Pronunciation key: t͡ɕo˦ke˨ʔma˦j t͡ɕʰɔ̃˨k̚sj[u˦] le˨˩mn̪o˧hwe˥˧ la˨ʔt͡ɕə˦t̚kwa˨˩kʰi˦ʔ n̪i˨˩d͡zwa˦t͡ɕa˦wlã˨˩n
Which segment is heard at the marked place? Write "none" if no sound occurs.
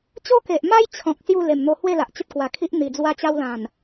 u˥˧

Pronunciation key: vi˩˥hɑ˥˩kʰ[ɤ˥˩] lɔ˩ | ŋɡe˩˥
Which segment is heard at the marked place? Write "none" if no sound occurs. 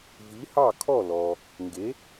ɔ˥˩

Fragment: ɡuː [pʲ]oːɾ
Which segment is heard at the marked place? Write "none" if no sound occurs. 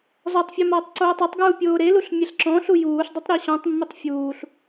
pʲ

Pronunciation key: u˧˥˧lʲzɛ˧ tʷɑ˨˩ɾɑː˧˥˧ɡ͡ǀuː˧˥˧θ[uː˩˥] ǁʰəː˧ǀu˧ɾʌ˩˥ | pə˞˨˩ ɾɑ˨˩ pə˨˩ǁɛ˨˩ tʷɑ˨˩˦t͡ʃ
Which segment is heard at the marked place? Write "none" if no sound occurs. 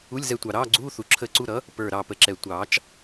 u˩˥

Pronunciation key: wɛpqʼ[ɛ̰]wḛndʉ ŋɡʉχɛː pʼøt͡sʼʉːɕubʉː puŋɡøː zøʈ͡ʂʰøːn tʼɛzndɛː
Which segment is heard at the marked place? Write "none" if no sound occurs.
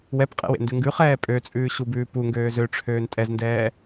ɛ̰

